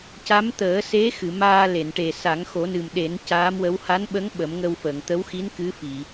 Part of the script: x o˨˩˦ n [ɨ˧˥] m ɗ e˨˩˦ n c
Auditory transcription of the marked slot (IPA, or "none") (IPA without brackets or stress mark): ɨ˨˩